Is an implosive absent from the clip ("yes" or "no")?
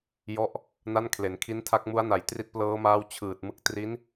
yes